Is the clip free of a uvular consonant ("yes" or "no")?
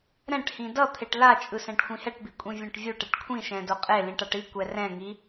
no